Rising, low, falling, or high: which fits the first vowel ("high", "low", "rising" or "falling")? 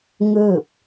falling